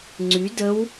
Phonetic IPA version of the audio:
ŋ͡ǀ y d ə w

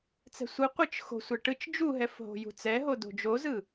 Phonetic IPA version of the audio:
t͡s ɛ̤ sʷ ɯ qʷ ɯ t͡ʃ x o̤ sʷ ɛ ʈ ɯ t͡ʃ d͡ʒ u ɦ ɛ f ɦ o̤ j ṳ t͡s ɛ ɦ o d o̤ d͡ʒ o z ɯ

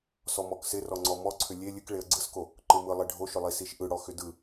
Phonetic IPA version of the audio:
s ɔ m ɔ k s ɪ r ɔ ŋ͡ǀ ɔ m ɔ ǀʰ ʏ lʲ e lʲ ɨ k ɭ e ə̯ ɡ͡ǀ ɯ s k o | ǃ ɯ m ɯ lˠ e ɖʱ o ʃ ʏ lˠ i s i ʃ ʔ ɯ ɽ ɔ x ʏ d ɯ

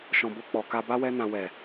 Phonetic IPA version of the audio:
ʃ ɔ̃˨ b o˧ k͡p ɔ˨ k a˧ b a˦ w ɛ˦ n ã˧ w ɛ˨

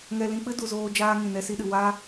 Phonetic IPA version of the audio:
ŋ ɛ˧ l ĩ˧ k͡p ɨ˦ d u˨ z oː˧ d͡ʒ aː˧ ŋ ĩ˨ n ɛ˧ s i˧ ɗ ɨ˨ w a˦

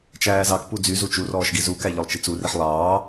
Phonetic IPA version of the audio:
t͡ʃ æː z ɑ k p u d͡z y z u t͡ʃ u r ɔː ʃ ɡ i z u k æ ʎ œ lˠ t͡ʃ i t͡s u r i ħ lˠ ɑː

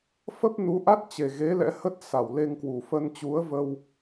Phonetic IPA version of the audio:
f ə˦˥ p̚ n u˨˦ ʔ a˦˥ t̚ t͡ɕ e˨˩ ɣ e˨˦ l ɛ̰˧˥ h ə˦˥ t̚ s a˧˩ w l e˧ ŋ k w u˨˩ f ə˧ n t͡ɕ u˨˦ ə̯ v ə˧ w

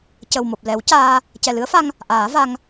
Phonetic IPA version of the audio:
c ə˨˩ w m o˨˩ p̚ l ɛ˨˩˦ w c aː˧ | c ɛ˨˩ l ɨ˧˥ ə̯ f a˧ ŋ | ʔ aː˨˩˦ v a˧ ŋ

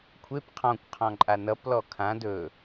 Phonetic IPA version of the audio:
kʷʰ e p qʰ ɔ̃ kʷ qʰ ɔ̃ ǃʼ a n ʌ p l ɔ kʰ ã d ɵ

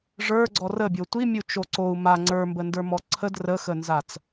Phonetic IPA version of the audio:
ʐ ə˞ ɡ͡ǀ ɔ r ə bʲ o tʷ i mʲ u t͡ʃ o ǀ o u̯ m a ŋ͡ǀ ə˞ m b ə n d ə˞ m ɔ ǀʰ ə d r ə x ə n z a t͡s

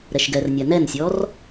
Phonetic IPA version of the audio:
ɾ ɛ ʃ ɡ ɛ r nʲ a n ɛ n sʲ ɔ r

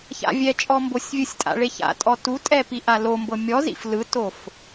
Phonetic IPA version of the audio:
ç a̰ vʲ ɛ t͡ʃʼ ɔ m b o sʲ vʲ ɯ sʲ tʼ a̰ ɭ e ç a̰ tʼ ɔ t u tʼ ɛ p i ʔ a l o m b ɤ mʲ ɔ z ḭ f l ɯ t o f

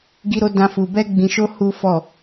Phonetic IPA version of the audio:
ɡ i˦ ɾ o˦ d ã˦ f u˧ b ɛ˦ ɡ͡b ĩ˧ ʃ o˦ h u˦ f ɔ˦˨

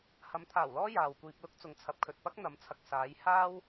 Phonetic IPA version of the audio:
h ɐ˨˥ m t̪ʰ aː˨˩ w l ɔː˥ j aː˨ w kʷ iː˧ p̚ l ʊ˥ k̚ t͡s ʊ˨˧ ŋ t͡sʰ ɐ˨˥ p̚ kʰ ɵ˨ t̚ p ɐ˥ k̚ n̪ ɐ˨˥ m t͡sʰ ɐ˨ k̚ s aː˨˧ j h aː˥ w

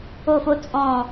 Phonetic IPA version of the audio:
o˦˨ f o˦ t͡sʼ ɔ̃˦˨

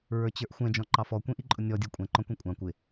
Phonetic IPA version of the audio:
ɹ ə˞ t͡ɕ ə˞ ʔ xʷ ɛ̃ d͡ʒ ɔ̃ ǃ ɑ f ɔ kʷ ĩ ʔ i ǃʼ ʊ nʲ ɔ dʲ ə˞ kʷʼ ɛ̃ ǃ ɔ̃ kʷ ĩ kʷʼ ɑ̃ kʷ ɪ

